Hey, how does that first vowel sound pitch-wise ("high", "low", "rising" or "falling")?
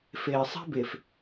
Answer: low